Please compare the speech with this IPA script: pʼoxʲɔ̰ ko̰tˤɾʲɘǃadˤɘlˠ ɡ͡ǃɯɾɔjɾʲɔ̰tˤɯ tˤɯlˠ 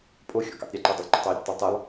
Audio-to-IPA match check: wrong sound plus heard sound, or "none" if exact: ɾ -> tˤ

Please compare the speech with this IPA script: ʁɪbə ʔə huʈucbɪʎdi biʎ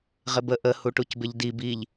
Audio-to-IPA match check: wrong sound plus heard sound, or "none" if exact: none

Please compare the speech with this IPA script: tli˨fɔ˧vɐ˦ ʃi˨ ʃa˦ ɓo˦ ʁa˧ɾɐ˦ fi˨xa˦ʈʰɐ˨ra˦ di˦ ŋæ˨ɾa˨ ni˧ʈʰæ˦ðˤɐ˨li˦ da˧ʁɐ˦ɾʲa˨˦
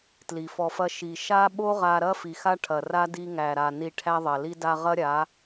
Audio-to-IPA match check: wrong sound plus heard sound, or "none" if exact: v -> f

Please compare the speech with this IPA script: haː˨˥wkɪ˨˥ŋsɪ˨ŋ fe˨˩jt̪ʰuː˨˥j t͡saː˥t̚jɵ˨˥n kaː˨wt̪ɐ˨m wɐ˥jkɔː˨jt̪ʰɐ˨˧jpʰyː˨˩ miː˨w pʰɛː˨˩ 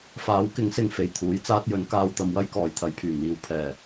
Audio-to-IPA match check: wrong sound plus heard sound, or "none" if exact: h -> f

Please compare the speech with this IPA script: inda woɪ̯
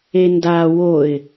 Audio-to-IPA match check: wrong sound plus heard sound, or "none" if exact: i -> e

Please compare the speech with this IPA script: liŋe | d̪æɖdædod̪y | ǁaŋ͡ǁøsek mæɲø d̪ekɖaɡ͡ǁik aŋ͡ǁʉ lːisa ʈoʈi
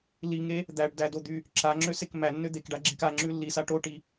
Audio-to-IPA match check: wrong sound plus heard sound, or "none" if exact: ɲ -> nː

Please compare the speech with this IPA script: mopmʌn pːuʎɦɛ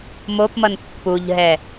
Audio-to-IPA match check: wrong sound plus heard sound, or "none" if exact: none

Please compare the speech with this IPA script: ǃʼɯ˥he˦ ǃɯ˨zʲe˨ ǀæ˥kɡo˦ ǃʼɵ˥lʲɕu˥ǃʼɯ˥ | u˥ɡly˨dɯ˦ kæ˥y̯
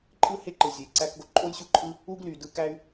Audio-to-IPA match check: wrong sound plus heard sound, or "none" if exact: ɵ˥ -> o˥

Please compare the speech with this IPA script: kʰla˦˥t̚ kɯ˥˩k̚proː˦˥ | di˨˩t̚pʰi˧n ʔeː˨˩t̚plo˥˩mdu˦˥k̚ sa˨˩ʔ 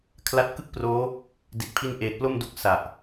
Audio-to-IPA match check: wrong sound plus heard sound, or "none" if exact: none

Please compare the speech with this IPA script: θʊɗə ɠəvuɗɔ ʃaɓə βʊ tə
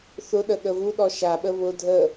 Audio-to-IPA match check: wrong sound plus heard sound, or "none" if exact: t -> dʱ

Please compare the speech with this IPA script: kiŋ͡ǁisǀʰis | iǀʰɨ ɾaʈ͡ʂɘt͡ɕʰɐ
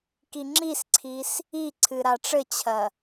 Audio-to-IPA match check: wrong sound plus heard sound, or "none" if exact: none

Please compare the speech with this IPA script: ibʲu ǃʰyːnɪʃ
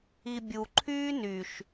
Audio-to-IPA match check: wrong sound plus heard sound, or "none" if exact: ɪ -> y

